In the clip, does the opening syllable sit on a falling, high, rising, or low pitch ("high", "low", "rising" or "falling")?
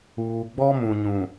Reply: low